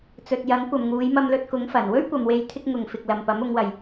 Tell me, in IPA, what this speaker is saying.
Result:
t͡s ɵ˨ t̚ j ɐ˨˥ ŋ kʷ ɐ˨ m ŋ uː˨˧ j m ɐ˧ m l ɵ˧ t̚ k ʊ˨˥ ŋ f ɐ˨˩ n w ɵ˥ ɥ kʷ ɐ˨ m w e˨ j t̪ʰ ɪ˧ k̚ ŋ ʊ˨ ŋ f ɪ˨ k̚ l ɐ˨ m p ɐ˨˥ m ʊ˨˧ ŋ w ɐ˨ j

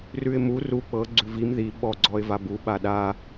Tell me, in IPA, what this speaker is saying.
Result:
r ʉ ɪ̯ m u r u k͡p ɤ ɡ͡ǀ ʉ v i m ð i ɓ ɔ ɡ͡ǀ ɔ ɪ̯ v a b u ɓ a ɗ a

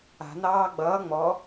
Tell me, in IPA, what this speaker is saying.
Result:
a̤ n ɑː ɡ͡b ʌː ŋ͡m ɔ

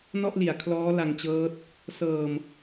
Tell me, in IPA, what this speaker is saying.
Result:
n ɔ˥˩ ʔ l i˨˩ a̯ kʰ l ɔː˦˥ l a˧ ŋ t͡ɕ ɤː˦˥ t̚ | s ɤː˨˩ m

